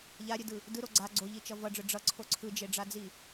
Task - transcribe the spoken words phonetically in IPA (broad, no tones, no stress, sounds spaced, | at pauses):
ʎ a ɾʲ ɯ d ɯ | d ɯ ɾ o ɡ͡ǀ a ɡ͡ǀ o ʎ i t͡ʃ ʌ v ʌ ɖ͡ʐ ɯ ɖ͡ʐ ʌ ǀʰ o ǀʰ ɯ d͡ʒ e ɖ͡ʐ a d͡z i